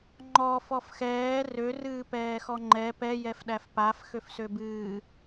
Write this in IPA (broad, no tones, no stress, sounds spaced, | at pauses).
ŋ͡ǃ ɔ f ɔ f x ɛː r ø r ɨː p ɛː x ɔ ŋ͡ǃ ɛ p ɛ j ɛ f ɗ æ f p a f x ø f s ø b ɨː